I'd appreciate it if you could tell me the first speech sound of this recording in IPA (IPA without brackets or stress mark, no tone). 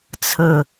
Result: t͡sʰ